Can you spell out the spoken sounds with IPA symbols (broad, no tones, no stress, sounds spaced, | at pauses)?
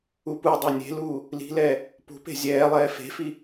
u p u dˤ o nʲ e̤ l uː | l i̤ l ɛː | p ṳ p e̤ zʲ ɛː lˠ ɛː f e̤ f i